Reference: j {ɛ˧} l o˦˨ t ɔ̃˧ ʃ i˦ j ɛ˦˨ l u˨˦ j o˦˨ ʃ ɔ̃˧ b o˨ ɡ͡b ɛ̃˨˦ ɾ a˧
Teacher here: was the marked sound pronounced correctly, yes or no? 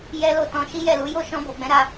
no